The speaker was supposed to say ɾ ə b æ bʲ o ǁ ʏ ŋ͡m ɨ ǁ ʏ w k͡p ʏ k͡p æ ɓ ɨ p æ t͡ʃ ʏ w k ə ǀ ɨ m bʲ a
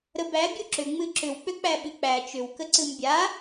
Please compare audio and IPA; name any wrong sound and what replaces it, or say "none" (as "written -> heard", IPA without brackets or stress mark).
p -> k͡p